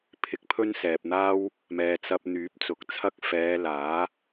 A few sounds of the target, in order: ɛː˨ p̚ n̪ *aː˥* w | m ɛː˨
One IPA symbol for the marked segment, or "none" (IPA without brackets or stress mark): aː˥